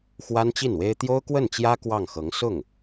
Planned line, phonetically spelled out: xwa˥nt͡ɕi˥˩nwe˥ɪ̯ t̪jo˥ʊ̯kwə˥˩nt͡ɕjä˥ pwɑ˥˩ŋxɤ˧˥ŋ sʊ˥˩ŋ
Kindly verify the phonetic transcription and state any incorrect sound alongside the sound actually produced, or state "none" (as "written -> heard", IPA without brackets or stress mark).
p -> k